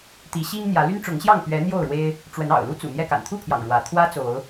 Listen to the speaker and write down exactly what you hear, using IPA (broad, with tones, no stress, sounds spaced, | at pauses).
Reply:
t̪ i˨˦ ɕ i˦ ŋ n̪ j ä˨˦ l y˦ n ʈ͡ʂ ʊ˨˦ ŋ ɕ j ɑ˥˨ ŋ p ɥ ɛ˨˦ n̪ j o˥˨ ʊ̯ ɻ w e˦ ɪ̯ | ʈ͡ʂ w ə˨˦ n ɑ̰˨˩ ʊ̯ l u˦ t͡s ṵ˨˩ n̪ j ɛ˥˨ k a̰˨˩ n t̪ʰ u˥˨ pʰ j ɑ̰˨˩ ŋ ɻ w ä˨˦ t̪ʰ w ä˦ t͡s o˨˦ ʊ̯